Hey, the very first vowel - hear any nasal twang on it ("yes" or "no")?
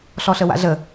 no